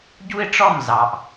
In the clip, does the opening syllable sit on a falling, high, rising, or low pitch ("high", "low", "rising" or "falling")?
high